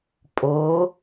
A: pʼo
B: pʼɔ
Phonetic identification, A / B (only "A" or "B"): A